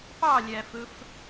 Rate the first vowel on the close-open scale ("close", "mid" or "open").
open